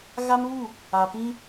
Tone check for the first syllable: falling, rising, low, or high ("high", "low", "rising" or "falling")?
high